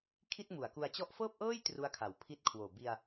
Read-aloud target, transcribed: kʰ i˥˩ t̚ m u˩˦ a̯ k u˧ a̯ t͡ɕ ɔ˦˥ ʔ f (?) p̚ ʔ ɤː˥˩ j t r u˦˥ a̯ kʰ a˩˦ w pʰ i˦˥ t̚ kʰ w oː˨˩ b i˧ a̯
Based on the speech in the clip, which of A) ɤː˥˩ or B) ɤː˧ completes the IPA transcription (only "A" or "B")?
A